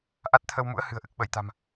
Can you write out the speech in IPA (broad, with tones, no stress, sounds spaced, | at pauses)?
ʔ a˦˥ t̚ t̪ʰ ə˧ w m ṵ˧˥ ə̯ h ɨ̤˨˩ ə̯ ʔ ɨ˨˩ k̚ ɓ ə˧˩ j t̪ a̤˨˩ m